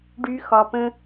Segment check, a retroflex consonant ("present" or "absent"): present